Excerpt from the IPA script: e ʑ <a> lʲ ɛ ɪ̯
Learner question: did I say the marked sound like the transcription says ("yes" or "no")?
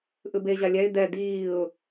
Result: yes